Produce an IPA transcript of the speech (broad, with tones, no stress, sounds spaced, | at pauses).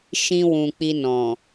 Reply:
ʃ ĩ˧ w ũ˨ k͡p i˧ n ɔ̃˨